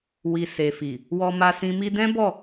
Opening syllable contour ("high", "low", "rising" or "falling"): low